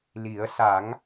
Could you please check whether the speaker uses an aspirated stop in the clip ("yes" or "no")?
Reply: no